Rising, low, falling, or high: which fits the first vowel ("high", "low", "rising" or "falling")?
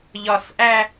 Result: low